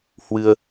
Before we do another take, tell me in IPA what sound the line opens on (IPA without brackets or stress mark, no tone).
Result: h